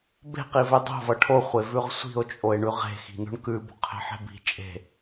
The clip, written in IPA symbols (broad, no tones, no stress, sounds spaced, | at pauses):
b e̤ q i v e dˤ o̤ v ʌ ʈʰ o χʷ e v ʉ ʁ sʷ i̤ o̯ t͡ʃʼ o e̯ ɳ ʉ ʁ e̤ x i̤ n o̤ ɳ k ʉ b o̤ qʰ e̤ ħ e̤ b i̤ t͡ʃʼ e̤